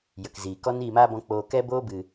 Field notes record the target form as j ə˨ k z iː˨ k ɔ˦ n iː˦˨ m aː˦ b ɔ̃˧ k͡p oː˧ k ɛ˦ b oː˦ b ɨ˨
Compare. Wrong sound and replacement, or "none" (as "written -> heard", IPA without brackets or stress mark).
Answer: none